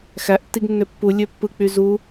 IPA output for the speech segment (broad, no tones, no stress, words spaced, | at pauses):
xæʔtːiɡ nːøpːu lʲøpːɯk͡py zu